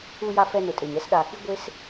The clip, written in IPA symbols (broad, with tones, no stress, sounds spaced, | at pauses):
u˧ j a˧ f ɛ˧ n ʊ˨ tʼ e˨ ɲ ɛ˦ s ɗ a˨ x i˦ ɡʷ e˦ s